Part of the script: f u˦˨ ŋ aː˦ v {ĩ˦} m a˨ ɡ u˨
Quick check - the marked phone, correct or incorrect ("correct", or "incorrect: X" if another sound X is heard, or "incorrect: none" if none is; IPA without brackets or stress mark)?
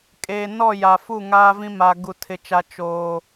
correct